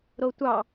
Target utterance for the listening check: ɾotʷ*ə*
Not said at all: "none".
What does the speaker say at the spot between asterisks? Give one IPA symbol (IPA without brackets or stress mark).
ɑ